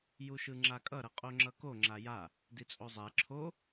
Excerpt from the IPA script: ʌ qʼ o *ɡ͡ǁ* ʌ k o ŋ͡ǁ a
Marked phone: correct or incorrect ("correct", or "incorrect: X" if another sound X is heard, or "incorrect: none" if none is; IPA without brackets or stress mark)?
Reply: incorrect: ŋ͡ǁ